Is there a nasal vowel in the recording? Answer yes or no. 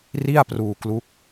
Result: no